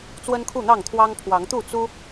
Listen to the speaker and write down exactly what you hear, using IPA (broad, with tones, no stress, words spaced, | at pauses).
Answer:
t͡swə˦nkʰu˥˨ n̪ɑ˥˨ŋt̪ʰwɑ˦ŋ pʰwɑ˨˦ŋ t̪u˥˨ t͡su˦